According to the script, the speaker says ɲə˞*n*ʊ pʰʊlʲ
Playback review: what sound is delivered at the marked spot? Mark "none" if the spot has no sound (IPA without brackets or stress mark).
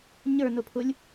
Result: n